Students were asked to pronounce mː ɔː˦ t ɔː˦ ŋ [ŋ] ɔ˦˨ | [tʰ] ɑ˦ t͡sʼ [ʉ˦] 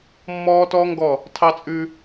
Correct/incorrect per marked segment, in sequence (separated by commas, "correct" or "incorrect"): incorrect, correct, correct